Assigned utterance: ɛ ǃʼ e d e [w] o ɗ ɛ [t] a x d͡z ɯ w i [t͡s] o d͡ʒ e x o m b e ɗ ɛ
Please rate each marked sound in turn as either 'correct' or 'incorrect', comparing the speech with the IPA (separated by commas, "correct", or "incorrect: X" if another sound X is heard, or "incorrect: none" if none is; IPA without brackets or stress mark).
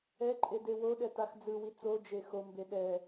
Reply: correct, correct, correct